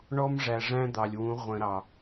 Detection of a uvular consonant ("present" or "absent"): present